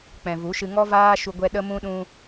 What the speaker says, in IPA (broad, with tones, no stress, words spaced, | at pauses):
k͡pɛ̃˨vu˨˦ʃɨ˧ ŋɔ˦vaː˦ʃu˧ ɡʷɛ˧ ɗə˧mũ˧ɗũ˧